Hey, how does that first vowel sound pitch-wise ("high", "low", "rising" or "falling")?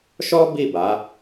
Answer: high